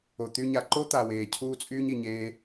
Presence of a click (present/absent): present